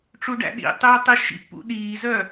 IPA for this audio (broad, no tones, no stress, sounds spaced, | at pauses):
ʈ͡ʂ u ɖ æ̰ ɗ ḭ tˤ øː tˤ i ʃ ḭ pː ṵ ɗ iː z œ